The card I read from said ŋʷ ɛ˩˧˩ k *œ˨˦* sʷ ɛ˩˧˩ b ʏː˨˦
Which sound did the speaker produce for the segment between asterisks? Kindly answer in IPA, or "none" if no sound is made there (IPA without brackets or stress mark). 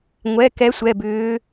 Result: ɛ˨˦